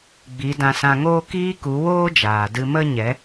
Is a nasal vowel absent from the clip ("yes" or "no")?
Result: no